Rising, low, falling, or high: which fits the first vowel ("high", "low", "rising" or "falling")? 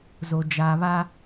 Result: low